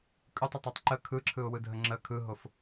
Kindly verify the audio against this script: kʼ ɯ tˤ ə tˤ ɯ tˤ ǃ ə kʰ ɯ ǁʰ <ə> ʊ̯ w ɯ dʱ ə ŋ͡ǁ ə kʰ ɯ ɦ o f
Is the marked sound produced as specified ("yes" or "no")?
no